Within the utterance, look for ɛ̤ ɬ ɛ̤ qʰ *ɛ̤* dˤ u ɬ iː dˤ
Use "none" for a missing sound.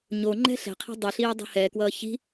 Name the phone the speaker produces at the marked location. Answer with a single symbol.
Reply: ɛ̤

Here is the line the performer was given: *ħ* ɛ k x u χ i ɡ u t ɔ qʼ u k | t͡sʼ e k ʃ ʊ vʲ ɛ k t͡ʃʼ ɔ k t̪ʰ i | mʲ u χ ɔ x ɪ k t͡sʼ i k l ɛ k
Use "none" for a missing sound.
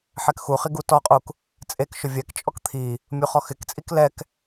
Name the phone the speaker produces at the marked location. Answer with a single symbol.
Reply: ħ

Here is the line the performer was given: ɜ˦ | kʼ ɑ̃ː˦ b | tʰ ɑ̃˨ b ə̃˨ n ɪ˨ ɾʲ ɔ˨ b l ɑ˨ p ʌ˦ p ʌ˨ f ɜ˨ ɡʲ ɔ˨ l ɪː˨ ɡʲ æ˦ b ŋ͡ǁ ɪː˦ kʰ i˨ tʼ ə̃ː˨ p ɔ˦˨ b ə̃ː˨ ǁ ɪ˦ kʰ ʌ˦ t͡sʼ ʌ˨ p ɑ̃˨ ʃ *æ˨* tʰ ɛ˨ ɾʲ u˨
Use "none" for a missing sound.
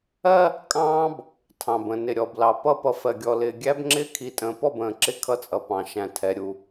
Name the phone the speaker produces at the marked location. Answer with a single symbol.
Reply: æ̃˨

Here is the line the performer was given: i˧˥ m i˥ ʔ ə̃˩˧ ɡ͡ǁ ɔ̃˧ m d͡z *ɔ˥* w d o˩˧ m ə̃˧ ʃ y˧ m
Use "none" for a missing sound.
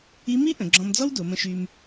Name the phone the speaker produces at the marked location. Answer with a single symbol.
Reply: ɔ˥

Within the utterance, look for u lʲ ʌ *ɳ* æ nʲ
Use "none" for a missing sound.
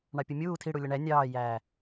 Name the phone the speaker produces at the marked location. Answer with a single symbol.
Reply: ɳ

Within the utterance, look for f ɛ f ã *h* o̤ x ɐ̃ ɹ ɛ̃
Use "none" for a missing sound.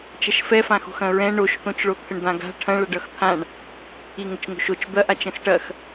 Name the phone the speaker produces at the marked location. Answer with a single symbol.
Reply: x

